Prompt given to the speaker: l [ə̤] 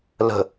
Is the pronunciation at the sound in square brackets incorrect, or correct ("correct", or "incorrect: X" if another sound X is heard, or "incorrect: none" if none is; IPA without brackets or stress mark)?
correct